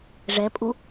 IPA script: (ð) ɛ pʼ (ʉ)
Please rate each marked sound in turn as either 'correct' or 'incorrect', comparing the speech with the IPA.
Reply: incorrect: ʐ, incorrect: u

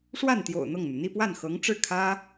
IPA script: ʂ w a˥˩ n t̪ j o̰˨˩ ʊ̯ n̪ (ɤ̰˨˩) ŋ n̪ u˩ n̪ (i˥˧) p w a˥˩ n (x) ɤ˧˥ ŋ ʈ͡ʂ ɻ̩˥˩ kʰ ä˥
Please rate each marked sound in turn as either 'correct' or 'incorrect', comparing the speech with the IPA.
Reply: incorrect: ɤ˥˩, correct, correct

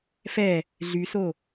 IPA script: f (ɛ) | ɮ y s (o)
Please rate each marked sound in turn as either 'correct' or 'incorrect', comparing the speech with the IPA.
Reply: correct, correct

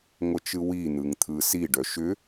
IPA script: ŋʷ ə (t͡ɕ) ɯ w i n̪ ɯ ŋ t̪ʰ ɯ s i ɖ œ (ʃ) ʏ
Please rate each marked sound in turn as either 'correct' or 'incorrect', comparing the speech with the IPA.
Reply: incorrect: t͡ʃ, correct

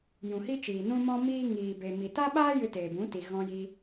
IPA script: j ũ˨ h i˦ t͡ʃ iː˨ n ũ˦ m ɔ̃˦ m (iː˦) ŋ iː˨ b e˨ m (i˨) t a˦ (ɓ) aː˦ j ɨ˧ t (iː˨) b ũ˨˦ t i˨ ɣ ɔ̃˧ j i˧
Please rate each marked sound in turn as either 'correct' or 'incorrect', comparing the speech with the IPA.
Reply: correct, correct, correct, incorrect: eː˨

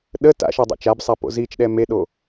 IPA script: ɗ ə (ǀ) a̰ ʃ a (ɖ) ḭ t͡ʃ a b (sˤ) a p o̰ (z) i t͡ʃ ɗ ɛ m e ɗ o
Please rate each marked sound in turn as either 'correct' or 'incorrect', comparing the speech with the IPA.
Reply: incorrect: t, incorrect: dˤ, correct, correct

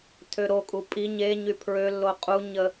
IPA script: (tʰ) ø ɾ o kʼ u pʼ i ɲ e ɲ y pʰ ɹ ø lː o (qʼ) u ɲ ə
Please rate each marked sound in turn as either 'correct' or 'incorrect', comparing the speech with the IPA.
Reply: correct, correct

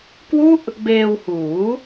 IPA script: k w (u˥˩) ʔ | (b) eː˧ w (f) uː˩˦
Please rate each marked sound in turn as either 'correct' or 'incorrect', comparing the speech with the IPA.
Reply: incorrect: u˦˥, correct, incorrect: h

